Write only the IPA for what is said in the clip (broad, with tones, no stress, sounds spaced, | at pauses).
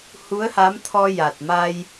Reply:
h u˧˥ ə̯ h a˧˥ m t̪ʰ ɔ˧ j a˨˩ t̚ m a˧ j